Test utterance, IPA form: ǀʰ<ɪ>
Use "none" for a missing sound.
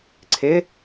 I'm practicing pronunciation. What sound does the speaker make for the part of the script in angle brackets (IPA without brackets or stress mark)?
ɪ